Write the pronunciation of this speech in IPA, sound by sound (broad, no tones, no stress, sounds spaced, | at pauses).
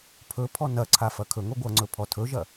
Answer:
pʰ ɵ pʰ ɔ n ɐ ǀʰ a f ɐ kʰ ɵ ŋ o ɡʷ ɐ ŋ͡ǀ ɵ pʰ ɔ tʰ ɵ ʒ ɐ